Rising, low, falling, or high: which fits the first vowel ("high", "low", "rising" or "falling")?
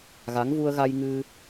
rising